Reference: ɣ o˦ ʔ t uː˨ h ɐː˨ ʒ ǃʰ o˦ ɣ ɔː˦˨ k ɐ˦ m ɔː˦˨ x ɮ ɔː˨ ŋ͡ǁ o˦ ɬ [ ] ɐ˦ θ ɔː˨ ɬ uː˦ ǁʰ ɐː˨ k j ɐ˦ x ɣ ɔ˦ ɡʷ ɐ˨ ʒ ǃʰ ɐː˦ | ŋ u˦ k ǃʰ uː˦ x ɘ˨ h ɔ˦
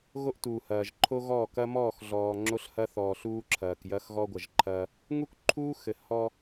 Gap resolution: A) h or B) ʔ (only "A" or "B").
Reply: A